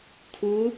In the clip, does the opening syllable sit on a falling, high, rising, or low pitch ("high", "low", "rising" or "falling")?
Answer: rising